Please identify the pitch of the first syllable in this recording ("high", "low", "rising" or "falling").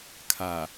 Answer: low